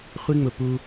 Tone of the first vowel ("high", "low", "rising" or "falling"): high